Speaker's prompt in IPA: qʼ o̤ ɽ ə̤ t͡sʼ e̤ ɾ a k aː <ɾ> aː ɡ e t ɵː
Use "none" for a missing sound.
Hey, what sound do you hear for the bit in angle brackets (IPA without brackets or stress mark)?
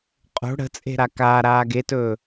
ɾ